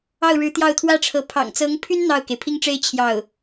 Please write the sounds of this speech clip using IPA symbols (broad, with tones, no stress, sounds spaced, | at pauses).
ɑ˥˩ ʊ̯ ɻ ɻ̩˧˥ t̪ j ɑ˥˩ ʊ̯ t̪ʰ w ä˥ ʈ͡ʂʰ ɤ˧˥ pʰ ɑ̰˨˩ ŋ t͡s ɤ˧˥ ŋ pʰ y˥ n n̪ ɑ˥˩ ʊ̯ k e˩ ɪ̯ pʰ i˥ ŋ ʈ͡ʂ e˥ ɪ̯ t͡ɕʰ j ɑ˥˩ ʊ̯